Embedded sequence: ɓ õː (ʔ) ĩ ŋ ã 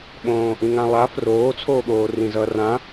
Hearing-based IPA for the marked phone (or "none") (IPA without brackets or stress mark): ʔ